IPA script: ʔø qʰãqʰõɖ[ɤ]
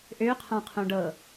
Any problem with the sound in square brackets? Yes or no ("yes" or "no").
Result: no